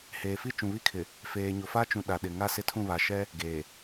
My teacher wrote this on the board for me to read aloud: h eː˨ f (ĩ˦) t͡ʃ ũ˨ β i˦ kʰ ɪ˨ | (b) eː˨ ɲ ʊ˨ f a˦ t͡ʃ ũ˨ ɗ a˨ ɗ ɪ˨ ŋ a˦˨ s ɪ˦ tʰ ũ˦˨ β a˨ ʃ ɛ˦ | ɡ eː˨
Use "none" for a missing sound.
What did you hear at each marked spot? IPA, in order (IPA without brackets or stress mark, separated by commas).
i˦, f